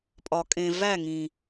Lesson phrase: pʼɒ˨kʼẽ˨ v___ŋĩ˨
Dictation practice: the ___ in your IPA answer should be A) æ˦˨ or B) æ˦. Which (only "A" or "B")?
A